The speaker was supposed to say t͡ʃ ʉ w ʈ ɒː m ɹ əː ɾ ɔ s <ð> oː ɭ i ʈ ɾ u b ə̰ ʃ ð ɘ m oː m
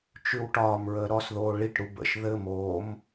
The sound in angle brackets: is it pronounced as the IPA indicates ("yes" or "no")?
yes